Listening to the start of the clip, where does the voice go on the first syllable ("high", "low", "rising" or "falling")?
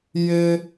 high